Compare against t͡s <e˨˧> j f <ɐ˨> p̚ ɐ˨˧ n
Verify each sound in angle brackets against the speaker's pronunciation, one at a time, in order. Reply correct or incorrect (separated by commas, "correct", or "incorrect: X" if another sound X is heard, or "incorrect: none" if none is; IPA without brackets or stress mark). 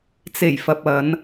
incorrect: e˨˩, correct